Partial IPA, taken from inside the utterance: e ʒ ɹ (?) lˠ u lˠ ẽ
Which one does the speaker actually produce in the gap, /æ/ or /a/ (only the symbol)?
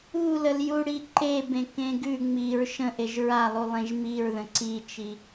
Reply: a